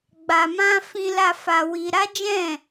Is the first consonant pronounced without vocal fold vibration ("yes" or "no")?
no